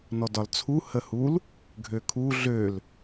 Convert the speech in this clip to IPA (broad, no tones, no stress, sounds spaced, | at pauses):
n ɔ d ɒ l t͡sʰ u h ə h u l | ɡʱ ø kʰ u ɮ ø l